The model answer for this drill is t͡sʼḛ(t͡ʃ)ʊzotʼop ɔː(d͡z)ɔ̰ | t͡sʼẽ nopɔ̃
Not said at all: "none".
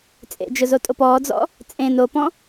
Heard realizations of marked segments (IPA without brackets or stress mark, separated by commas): d͡ʒ, d͡z